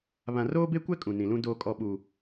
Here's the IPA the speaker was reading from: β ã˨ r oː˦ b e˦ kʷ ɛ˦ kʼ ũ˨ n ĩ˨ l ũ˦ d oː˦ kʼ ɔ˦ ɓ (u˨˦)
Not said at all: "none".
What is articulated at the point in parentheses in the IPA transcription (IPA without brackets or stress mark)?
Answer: u˦